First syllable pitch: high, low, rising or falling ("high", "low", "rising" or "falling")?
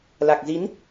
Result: low